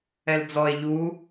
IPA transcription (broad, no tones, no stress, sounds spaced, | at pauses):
ɛ l d͡z ɔ e̯ ʎ u